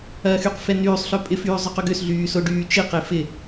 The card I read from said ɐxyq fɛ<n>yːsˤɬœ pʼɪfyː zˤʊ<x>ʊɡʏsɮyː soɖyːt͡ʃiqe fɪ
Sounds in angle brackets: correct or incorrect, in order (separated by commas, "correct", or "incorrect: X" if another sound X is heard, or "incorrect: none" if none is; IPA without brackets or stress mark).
correct, incorrect: q